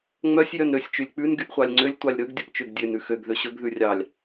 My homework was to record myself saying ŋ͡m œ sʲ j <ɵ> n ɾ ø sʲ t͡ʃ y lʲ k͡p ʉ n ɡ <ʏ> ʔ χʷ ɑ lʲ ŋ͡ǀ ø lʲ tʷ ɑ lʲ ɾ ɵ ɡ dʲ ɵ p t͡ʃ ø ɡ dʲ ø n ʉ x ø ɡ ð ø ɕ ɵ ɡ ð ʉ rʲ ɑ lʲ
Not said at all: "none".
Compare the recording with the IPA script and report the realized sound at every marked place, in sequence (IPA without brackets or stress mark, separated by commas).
œ, y